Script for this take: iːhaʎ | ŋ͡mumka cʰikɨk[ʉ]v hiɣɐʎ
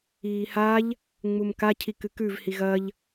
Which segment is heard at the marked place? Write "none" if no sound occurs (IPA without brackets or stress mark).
ʉ